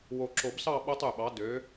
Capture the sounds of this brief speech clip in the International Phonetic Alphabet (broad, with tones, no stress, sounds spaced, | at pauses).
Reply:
w o˨˩ ǁ o˨˩˦ b s ɑ˥˧ ɓ o˦˥ tˤ y˨˩ ɓ ɑ˩˥ d ø˩˥